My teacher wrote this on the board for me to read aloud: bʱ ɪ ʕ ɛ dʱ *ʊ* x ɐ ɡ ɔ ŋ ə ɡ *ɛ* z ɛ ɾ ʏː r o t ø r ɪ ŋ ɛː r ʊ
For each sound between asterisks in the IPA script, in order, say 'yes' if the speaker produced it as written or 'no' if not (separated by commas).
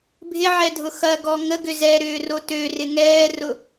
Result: yes, no